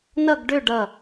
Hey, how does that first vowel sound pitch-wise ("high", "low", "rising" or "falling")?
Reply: falling